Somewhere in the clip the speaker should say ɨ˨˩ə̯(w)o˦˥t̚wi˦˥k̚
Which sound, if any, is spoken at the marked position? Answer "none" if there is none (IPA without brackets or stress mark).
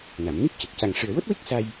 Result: w